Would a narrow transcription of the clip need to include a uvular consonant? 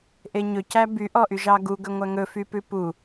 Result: no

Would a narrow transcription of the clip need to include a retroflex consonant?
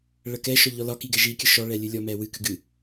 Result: yes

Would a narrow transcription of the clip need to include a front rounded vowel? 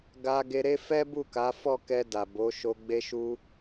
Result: no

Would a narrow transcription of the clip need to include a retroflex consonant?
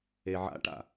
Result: yes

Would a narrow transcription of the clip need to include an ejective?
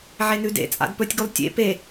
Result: yes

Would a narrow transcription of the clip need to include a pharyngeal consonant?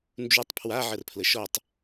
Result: yes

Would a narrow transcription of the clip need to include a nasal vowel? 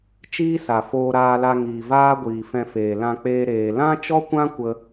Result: yes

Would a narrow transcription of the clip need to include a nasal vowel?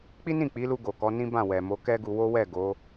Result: yes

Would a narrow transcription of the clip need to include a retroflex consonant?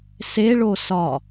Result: yes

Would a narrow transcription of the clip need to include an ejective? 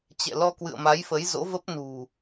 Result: no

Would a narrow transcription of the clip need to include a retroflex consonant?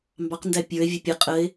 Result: no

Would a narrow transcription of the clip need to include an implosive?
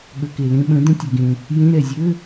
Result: yes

